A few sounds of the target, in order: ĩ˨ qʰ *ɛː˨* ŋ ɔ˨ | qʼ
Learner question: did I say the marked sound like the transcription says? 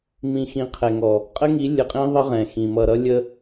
no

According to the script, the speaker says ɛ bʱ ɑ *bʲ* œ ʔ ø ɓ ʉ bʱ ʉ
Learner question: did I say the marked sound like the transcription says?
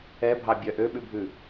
yes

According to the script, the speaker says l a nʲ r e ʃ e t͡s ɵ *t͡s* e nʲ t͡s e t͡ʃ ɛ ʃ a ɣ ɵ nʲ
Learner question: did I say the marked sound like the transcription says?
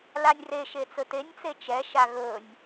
no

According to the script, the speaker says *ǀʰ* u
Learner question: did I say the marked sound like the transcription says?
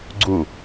no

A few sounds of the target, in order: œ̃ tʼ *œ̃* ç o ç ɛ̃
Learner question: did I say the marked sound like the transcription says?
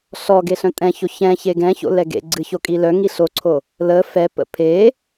no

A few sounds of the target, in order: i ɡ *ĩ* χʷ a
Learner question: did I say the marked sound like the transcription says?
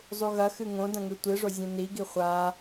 no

